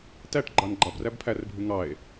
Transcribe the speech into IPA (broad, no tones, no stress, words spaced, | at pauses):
tæʈɡ͡ǃɑn ɡ͡ǃɑbræb pʰærbʱʉ ŋɑe̯